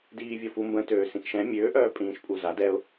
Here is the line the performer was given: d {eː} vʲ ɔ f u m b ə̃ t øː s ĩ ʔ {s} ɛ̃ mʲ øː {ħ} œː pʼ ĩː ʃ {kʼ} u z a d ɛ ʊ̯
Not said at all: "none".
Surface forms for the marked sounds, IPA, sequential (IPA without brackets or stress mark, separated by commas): iː, ʃ, ʔ, pʼ